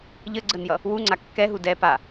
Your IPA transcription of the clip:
ʎəɡ͡ǀənjʌ | wuŋ͡ǀa kːɛɦu dɛ pa

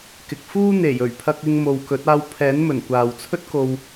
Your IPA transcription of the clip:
kɪ˨k̚fuː˥n̪e˨˩j ɵ˨˩ɥpʰɐ˧k̚ɪ˧ŋ mo˨wkɵ˨˥t̚ aː˧wpʰɛː˨˥nmɵ˨˩n kʷaː˨wt͡sʰɵ˥t̚ko˧w

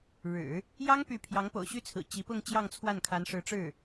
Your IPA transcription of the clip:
ɻɻ̩˨˩˦ | jɑ˥ŋ py˥˩ pʰjɑ˧˥ŋpo̰˨˩ʊ̯ɕy˥˩t͡sʰɹ̩˨˩ t͡ɕi˧˥pʊ˥˧ŋ t͡ɕjɑ˥˧ŋt͡sʰwa˥˩nkʰa˧˥n ʂɻ̩˧˥ʈ͡ʂɻ̩˥˩

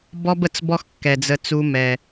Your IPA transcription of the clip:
bɔ˦bə˨t͡s bɔ˦xkːɛ˨d͡zə˧t͡su˧ mɛ˨

